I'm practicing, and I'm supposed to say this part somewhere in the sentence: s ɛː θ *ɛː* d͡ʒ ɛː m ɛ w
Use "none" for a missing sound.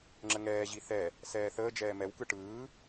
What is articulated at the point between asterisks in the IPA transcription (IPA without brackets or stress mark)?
əː